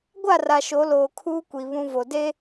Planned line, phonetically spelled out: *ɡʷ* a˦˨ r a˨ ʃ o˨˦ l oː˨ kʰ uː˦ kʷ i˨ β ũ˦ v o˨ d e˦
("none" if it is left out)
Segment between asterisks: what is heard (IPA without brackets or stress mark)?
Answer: ɡʷ